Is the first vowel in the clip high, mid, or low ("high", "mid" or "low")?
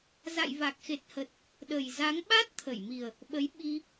low